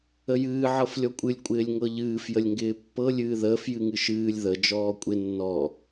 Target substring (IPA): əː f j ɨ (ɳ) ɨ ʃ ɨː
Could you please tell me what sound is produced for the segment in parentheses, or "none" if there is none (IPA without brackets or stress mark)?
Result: ŋ